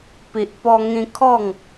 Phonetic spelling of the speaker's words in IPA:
p i˨ ʔ p ɔ˧ ŋ ĩ˧ kʰ ɔ˥˧ ŋ

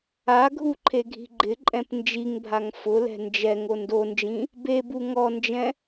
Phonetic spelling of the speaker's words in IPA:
a ɡʱ u ǃʰ e ɡʱ i̤ ɡ͡ǃ ɪ ǃʼ ɛ̃ p n d͡ʒ i ŋ bʱ a ŋ f ʊ l ɛ̤ n d͡ʒ ɛ ŋ o n d o n d͡ʒ ĩ | b e b u ŋ ɔ n d͡ʒ ɛ̃

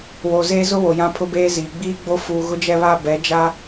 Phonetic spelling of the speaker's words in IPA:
w o˨ z eː˦ z ʊ˦ w o˨ j ã˦ pʰ ʊ˦ b eː˦ z iː˨ ɡ͡b iː˦ ɡ͡b o˦ f uː˨ ɣ ʊ˦ d͡ʒ ɛ˦ β a˦ b ɛ˨˦ d͡ʒ a˦

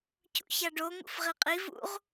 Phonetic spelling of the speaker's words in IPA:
cʰ ṵ ç a ɖ o ŋ ṵ f ʁ i qʼ i v ṵ ʁ

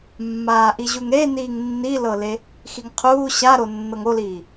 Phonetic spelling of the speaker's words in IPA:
mː aː ʔ i ʑ u ŋ ɾ e n iː ŋ nː i l ɤ l e | x i ŋ qʰ uː ɕ a ɾ o nː ɤ ŋ o l iː

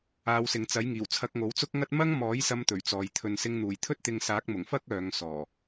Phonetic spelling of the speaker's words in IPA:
aː˨˧ w s ɪ˨ ŋ t͡s ɐ˨˥ j ŋ iː˨˩ w t͡sʰ ɐ˧ k̚ ŋ o˨˥ w t͡s ʊ˥ k̚ ŋ ɐ˥ t̚ m ɐ˥ ŋ m ɔː˨˥ j s ɐ˧ m t̪ ɵ˨˩ ɥ t͡s ɔː˨ j t̪ʰ ɵ˨ n s ɪ˧ ŋ n̪ uː˨˩ j t̪ʰ ɵ˥ t̚ t̪ ɪ˧ ŋ s aː˨˥ k̚ m ʊ˨˩ ŋ f ɐ˥ k̚ œː˨˧ ŋ s ɔː˨˩

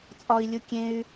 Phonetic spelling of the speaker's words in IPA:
t͡sʼ ɒ i̯ lʲ u kʲ ẽ y̯

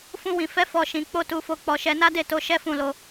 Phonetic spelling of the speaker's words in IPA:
f ũ˧ w ĩ˨ f ɛ˨˦ f ɔ˦˨ ʃ ĩ˨˦ k͡p o˦ t u˧ f o˧ k͡p ɔ˧ ʃ ɛ˧ n a˦ d e˦˨ t o˨˦ ʃ ɛ˦ f ũ˦˨ l o˧

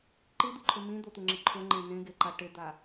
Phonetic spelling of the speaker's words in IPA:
ǃ i d̪ u ǃʰ ɪ m ĩ d̪ o t̪ u ŋ͡ǁ ɪ ǃʰ ʊ ŋ͡ǃ ẽ n ẽ ɡ e ǃ a ʈ ɪ d̪ a

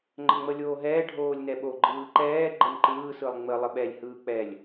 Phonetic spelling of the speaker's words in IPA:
ŋ͡ǃ ə ŋ͡m ə lʲ oː ɦ ɛː ɖʱ oː lʲ n ɛ ɓ o ɡ͡ǃ ɯː ǃ ɛː ɡ͡ǃ ə n ǃ ɯː s ɯ lˠ ŋ͡m ə lˠ ə ɓ ɛ lʲ h ɯː k͡p ɛ lʲ

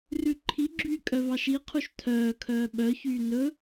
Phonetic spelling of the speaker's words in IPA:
r ʉ ǃʰ i ɡ͡ǁ yː kʼ œ v ɑ ʃ i qʰ u ʃ tʰ œː kʰ œː ɓ œ ç yː n ɵ

